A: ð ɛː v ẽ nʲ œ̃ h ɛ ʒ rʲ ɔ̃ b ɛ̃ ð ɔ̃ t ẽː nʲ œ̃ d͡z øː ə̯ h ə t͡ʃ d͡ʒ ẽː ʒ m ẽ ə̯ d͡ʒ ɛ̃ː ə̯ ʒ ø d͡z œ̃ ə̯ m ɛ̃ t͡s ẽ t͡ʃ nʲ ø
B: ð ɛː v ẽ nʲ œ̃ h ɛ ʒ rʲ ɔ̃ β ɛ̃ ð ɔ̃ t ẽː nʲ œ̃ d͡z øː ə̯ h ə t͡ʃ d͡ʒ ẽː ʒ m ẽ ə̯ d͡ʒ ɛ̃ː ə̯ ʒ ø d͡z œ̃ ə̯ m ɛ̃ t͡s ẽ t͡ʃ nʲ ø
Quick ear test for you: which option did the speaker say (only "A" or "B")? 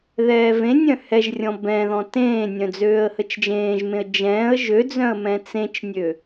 A